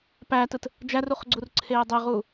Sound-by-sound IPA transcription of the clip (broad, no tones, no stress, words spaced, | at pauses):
pætɯt | d͡ʒæruχɡ͡ǀurǀʰeː dˤeʁuː